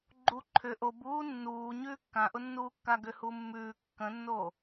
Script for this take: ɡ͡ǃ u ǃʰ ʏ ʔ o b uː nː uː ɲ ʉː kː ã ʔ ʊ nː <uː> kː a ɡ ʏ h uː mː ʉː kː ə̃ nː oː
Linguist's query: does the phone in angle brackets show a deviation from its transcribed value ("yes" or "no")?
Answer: no